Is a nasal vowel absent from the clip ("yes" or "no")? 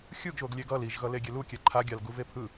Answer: yes